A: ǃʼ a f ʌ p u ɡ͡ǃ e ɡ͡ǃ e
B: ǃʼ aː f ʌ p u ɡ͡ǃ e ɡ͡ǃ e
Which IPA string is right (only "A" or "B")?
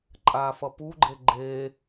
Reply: B